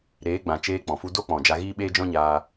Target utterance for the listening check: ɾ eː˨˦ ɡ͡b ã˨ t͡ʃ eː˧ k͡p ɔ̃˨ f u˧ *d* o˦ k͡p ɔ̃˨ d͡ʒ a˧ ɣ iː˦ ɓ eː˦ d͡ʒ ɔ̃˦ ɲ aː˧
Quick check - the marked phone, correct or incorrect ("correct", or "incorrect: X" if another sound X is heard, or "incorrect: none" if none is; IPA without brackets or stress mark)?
correct